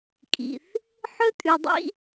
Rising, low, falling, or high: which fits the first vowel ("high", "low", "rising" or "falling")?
low